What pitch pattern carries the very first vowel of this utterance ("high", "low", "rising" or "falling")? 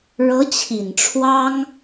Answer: rising